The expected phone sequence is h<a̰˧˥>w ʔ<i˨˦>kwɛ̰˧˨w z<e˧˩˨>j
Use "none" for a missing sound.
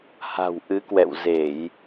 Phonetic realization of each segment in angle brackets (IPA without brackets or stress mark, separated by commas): a̤˨˩, ɨ˨˦, e˧˩˨